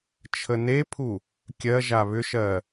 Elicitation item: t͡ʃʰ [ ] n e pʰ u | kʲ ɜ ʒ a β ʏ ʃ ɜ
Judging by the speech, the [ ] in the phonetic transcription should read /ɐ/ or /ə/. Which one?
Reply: ə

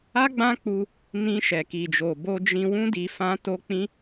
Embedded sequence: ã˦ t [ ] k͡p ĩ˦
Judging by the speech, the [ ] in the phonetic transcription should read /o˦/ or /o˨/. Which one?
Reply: o˦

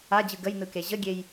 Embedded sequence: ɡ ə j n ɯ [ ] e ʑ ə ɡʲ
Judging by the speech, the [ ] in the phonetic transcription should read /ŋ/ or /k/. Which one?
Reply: k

